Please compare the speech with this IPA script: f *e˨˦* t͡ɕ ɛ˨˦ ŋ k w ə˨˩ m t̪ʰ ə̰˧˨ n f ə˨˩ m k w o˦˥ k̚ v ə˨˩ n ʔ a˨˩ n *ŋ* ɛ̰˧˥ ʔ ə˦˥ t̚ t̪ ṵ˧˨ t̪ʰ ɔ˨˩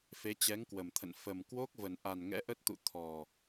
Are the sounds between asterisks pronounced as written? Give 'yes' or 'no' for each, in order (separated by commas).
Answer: yes, yes